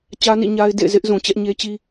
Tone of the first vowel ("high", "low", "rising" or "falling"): high